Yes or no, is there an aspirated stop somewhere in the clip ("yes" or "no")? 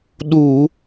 no